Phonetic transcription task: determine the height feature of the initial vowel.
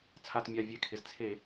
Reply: low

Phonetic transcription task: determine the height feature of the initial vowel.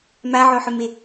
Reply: low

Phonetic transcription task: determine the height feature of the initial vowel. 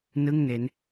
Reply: high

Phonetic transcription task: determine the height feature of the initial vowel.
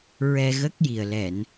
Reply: mid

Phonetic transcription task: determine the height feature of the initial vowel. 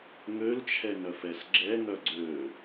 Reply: mid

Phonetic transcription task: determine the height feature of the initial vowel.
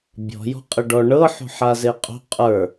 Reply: mid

